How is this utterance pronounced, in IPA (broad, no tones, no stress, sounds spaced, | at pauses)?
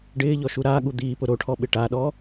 ɖ ɪː ʎ ɔ ʃ u ɾ a ɠ u d̪ iː p ʊ ɾ o ʈʰ ɔ ɓ ɪ ʈ a ɗ ɔ